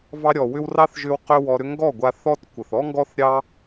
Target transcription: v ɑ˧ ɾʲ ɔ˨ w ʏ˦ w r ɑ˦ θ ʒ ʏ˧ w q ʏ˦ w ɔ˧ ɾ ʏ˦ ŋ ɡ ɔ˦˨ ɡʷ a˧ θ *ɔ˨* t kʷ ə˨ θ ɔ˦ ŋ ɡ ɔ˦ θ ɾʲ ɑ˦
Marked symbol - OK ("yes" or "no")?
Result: no